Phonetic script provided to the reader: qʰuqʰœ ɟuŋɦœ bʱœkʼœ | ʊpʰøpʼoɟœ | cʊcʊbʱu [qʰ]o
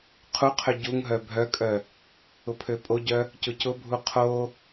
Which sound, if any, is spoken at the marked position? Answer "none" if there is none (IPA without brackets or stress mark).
qʰ